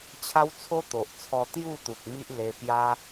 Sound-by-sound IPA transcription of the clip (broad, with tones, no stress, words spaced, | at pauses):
t͡ɕʰa˦wt͡sʰo˦ t̪o˨ʔt͡sʰɔ˧ t̪ju˥˧t̪u˨k̚ mi˦ʔle˧pja˦